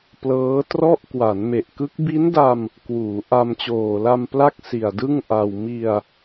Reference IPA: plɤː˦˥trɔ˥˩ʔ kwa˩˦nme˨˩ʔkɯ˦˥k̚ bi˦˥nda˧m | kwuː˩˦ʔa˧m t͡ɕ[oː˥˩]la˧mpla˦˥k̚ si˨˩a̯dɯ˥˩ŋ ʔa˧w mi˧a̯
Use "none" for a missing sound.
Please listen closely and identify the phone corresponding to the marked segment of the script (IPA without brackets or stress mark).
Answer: oː˨˩